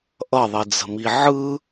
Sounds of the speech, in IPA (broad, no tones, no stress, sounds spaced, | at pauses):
ʔ ʌ ðˤ i d͡z ə̤ m i ʕ ɯ